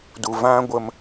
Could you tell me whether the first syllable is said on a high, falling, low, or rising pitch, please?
low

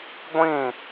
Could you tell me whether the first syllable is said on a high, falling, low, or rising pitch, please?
falling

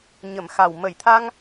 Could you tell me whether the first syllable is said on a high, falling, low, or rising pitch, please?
low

